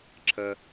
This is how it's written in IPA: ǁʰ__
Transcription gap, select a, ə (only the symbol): ə